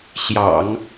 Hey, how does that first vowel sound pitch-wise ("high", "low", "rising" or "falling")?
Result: low